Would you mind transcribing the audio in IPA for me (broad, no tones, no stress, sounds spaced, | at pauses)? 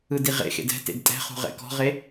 ɯ d i ʁ ḛ x ḛ d ɛ̤ t ḛ d tʼ ɛ̤ χ ṳ ʁ ɛ̰ k ɔ̤ ʁ e